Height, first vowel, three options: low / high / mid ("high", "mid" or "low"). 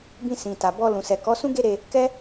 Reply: high